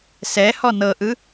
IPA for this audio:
s ɛ h ɔ n ɤ ʔ ɯ

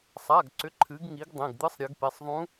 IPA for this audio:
sˤ a˩˧˩ ɡ ǀ ʏ˩˥ ǃʰ ɨ˩˧ ɡ ŋ i˩˧ ɡ dˤ ẽ˩˧˩ ɡ d̪ ɨ˧˥ sˤ ɾʲ ɨ˩˧ ɡ p e˩˧˩ sˤ ðˤ ũ˧˥

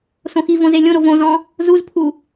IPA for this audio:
s õ x i v õ z e lʲ õ ɾ o v õ z ɔ̃ | z u z pʰ u

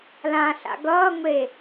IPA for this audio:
l ã ɬ a̰ ɡ ʌː ŋʷ e

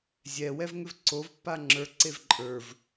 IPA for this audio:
zʲ ɛ w ɛ v ŋ ʏ v ǀ o v pː a ŋ͡ǁ ə˞ ǀ e v ǃʼ ə˞ v

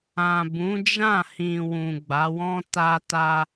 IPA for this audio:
ã˨ b ũ˨˦ d͡ʒ ã˦˨ h ĩ˨ w ũ˨ ɡ͡b a˨˦ w ɔ̃˦ t a˦ t a˦

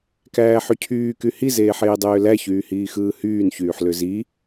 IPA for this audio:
k æː ħ y cʰ yː k y h i z eː ħ eː dˤ øː l æ ç yː h iː x ɯː h yː n ç yː ħ l ø z i

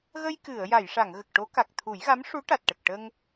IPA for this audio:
ɣ ə˧ j k ɨ˨˩˨ ə̯ j a˨˩˨ j ʂ a˨˩˨ ŋ ɣ ə˨˩ k̚ ʈ o˧˥ k a˨˩ k̚ t̪ʰ u˨˩˦ j ɣ a˧˥ m ʂ u˧˥ ʈ a˨˩ t̚ ʈ ə˨˩ k̚ ʈ ə˧ ŋ

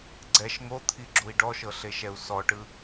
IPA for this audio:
ɡ͡ǀ ɛ ʃ ŋ o t̪ʰ i ɡ͡ǁ u i̯ ɖ ɔ ʃ ɤ ɬ e ʃ ɛ u̯ s ɔ ʈ ɯ

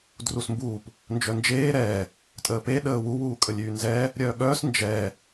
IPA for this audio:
d r u s m b uː p | n d͡ʒ œ n d͡ʒ eː ɾ ɛː | tʼ əː p e ɗ əː w u w uː kʼ ə lʲ yː n z ɛː | ɾʲ œː ɠ œː s n d͡ʒ ɛː

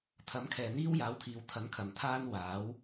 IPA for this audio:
t̪ʰ ɐ˨˥ m kʰ ɛː˨ n̪ iː˥ w j aː˨˥ w t̪ʰ iː˨˧ w t̪ʰ ɐ˨˥ n kʰ ɐ˨ m t̪ʰ aː˥ n w aː˨˥ w

